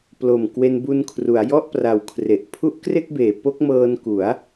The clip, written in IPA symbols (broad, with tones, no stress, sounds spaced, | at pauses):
p l o˨˩ m k w e˧ n b u˧ n kʰ r u˩˦ a̯ j ɔ˥˩ ʔ p r a˨˩ w kʰ r e˨˩ ʔ pʰ u˦˥ ʔ k r e˥˩ k̚ b eː˨˩ p o˦˥ k̚ m ɤː˧ n k u˩˦ a̯